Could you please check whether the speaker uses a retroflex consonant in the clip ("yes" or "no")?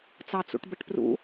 yes